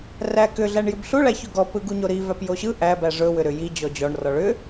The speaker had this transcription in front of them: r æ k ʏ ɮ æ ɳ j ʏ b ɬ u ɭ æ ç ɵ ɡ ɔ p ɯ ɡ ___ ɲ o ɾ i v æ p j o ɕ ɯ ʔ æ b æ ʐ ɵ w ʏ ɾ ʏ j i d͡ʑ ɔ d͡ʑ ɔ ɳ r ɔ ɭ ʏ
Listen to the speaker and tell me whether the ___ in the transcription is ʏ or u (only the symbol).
u